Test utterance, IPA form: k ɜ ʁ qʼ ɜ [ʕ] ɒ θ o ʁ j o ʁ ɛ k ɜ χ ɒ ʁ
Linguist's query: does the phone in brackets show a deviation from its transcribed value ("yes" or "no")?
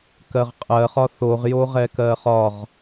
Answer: yes